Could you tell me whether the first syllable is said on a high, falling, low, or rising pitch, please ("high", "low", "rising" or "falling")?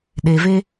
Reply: low